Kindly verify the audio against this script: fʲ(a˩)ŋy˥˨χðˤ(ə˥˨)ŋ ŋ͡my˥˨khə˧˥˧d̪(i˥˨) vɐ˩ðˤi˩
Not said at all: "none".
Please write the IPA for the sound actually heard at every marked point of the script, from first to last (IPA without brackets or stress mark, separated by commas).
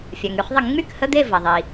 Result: a˩, ə˧˩˧, e˥˨